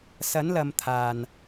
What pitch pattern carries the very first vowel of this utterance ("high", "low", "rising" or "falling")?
rising